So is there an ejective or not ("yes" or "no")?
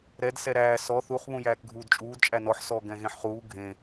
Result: yes